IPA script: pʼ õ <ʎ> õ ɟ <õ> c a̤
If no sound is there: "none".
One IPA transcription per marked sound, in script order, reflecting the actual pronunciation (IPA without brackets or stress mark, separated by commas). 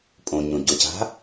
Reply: ɲ, o